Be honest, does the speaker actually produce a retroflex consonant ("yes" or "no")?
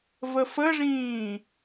yes